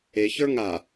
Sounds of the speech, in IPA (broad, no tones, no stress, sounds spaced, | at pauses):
e ç ə˞ ŋ a